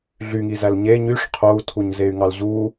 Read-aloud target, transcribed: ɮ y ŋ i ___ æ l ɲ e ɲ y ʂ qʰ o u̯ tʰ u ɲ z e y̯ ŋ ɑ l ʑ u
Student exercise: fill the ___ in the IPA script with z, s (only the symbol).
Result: z